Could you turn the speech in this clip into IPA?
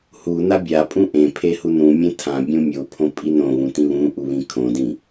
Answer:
hu nabʲapʼũ ʔẽpʰe hunũmʲẽ tʰãbʲũ mʲopʰõ pʼinõβũ tĩβũʔu βĩkʰõdĩ

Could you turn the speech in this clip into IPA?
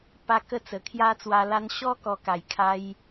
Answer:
pa˧kə˧ t͡sə˨˩kʰja˦t͡swa˧la˦n ɕɔ˦ kɔ˧ka˨˩j kʰa˧j

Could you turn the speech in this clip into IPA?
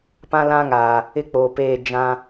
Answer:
pã˦lã˦ ŋaː˨ | ɪ˦k͡poː˨peː˦˨ d͡ʒã˦

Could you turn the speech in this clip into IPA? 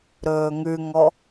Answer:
ɾɵːŋʉŋɔ

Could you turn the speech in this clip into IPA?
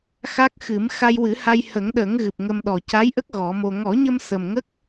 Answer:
xa˦˥k̚xɨ˨˩˦m xa˧jwɨ˨˩˦ha˧j hə˨˩˦ŋɗə˨˩˦ŋ ɣɨ˨˩p̚ ŋə˧mɗɔ˨˩ ca˧˥jʔə˦˥k̚ ɣɔ˨˩˦mo˧ ŋɔ˨˩˦ɲə˧m sə˨˩mŋə˦˥k̚

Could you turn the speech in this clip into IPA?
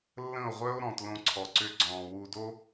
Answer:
lːə̃˦˨o̯ʁʷœ˦o̯ ɾɔ̃˨tlõ˧ǀʰɔ˨ ǀʏ˧ɡ͡ǀɔ̃˨ wu˧do˦

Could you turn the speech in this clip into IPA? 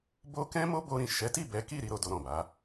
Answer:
bo˦ kɛ̃˦mo˦bo˧ ɾĩ˨ ʃɛ˨˦ti˦˨ bɛ˨˦ki˦˨ ɾi˧ɾo˧ do˧ɾɔ̃˨ba˨˦

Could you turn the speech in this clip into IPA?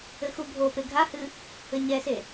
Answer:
ɘxubʱope ɡʱahɨ | ɘɲɛse

